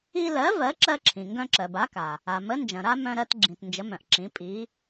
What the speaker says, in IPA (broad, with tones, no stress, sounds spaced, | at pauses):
i˦ l ɜ˨˥ v ɜ˨˥ ǁ ɜ˦ ǁʰ ĩ˩ ŋ ɡ œ̃˦ ǁ ɜ˩ b a˨˥ k a˩ | a˩ m ə˨˥ n d͡ʒ ɐ̃˩ ɾ a˦ m œ̃˦ ɾ ɜ˦ t ɡ͡ǁ ĩ˩ t n d͡ʒ ə˨˥ m œ̃˩ ʔ ǁ ĩ˨˥ pʼ i˨˥